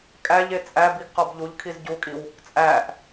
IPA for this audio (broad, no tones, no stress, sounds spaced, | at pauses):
kʼ æ ʎ e t͡sʼ æ b i ɡ q ɒ b ʎ u ʎ kʰ i z ɟ u kʼ i w | t͡sʼ æ ʔ